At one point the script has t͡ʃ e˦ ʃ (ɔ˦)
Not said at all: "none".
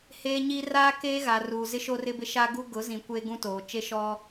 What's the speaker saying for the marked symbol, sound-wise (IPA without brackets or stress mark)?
ɔ˦